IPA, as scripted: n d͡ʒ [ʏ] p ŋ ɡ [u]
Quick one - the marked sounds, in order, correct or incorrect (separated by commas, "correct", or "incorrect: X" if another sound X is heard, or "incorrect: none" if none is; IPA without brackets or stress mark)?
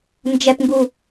incorrect: ɛ, correct